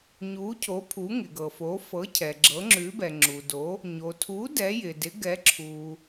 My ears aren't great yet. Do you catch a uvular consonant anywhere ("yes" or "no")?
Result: no